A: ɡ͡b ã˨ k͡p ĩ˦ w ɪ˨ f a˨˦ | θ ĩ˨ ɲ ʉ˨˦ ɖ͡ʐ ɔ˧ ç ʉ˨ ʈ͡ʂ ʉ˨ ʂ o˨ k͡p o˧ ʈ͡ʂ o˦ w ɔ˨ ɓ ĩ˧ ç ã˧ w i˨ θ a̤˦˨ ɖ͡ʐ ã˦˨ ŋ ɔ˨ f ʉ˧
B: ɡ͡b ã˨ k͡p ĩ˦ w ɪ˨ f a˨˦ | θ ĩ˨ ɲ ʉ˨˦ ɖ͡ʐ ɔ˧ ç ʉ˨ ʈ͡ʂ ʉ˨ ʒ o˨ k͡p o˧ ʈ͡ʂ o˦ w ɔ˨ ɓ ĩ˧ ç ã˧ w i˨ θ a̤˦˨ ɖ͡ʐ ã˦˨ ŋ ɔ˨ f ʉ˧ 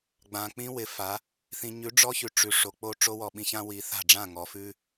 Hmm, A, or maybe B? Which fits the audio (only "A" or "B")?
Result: A